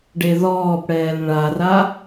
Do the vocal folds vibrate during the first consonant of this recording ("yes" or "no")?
yes